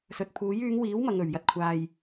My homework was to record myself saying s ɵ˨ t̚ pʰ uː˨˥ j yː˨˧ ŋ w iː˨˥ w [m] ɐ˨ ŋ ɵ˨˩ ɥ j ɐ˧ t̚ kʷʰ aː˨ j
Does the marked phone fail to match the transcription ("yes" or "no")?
no